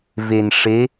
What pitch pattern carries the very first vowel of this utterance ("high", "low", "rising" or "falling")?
low